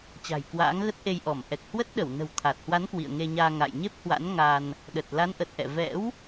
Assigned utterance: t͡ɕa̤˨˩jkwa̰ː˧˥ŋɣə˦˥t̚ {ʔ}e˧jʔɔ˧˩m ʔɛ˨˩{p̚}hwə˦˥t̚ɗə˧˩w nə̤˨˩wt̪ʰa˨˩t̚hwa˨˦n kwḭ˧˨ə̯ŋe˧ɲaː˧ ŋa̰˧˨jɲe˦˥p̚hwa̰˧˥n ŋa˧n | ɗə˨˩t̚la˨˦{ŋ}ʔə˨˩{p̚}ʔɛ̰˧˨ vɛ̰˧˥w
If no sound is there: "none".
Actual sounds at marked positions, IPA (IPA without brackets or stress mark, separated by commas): ʔ, k̚, n, t̚